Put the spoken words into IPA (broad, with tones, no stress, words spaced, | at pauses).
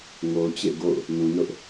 ŋo˨ʊ̯t͡ɕḛ˦˨ ɡo̰˦˨ʊ̯ | nũ˨nʊ˦ʔ